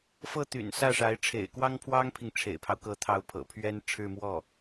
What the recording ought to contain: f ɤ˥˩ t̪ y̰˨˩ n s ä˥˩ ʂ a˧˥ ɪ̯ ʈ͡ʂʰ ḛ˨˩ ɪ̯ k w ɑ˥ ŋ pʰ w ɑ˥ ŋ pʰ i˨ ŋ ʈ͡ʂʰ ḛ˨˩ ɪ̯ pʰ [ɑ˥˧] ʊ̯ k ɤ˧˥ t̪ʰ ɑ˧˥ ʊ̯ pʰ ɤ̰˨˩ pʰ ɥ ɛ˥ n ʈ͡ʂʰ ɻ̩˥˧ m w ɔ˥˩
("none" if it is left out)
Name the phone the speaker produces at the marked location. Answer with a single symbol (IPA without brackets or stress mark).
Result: ɑ˦